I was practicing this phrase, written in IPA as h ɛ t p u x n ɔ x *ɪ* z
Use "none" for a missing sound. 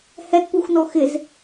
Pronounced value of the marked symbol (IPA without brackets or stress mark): ɪ